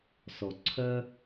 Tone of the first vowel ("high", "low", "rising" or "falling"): low